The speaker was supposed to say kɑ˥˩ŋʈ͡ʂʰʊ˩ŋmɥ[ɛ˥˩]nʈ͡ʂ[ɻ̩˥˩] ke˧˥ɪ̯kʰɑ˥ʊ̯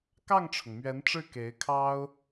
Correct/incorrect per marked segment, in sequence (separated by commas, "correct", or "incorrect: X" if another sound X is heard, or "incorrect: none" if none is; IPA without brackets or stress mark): incorrect: ɛ˧˥, correct